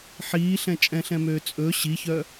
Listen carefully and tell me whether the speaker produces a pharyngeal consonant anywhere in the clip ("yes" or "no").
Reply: yes